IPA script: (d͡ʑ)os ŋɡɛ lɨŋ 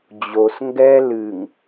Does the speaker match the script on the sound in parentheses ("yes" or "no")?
yes